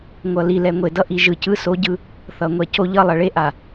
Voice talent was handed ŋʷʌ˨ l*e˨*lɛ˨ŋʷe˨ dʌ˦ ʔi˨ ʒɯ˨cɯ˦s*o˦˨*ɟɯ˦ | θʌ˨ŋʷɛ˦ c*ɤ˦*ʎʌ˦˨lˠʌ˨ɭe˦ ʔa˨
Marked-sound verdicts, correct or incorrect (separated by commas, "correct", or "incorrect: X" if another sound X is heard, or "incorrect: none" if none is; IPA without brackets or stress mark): incorrect: i˨, incorrect: o˦, incorrect: o˦